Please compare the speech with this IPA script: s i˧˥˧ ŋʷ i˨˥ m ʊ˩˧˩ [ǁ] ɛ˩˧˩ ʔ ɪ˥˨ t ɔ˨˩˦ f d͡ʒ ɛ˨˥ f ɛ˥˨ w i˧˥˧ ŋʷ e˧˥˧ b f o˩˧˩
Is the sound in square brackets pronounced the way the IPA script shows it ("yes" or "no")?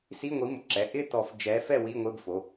yes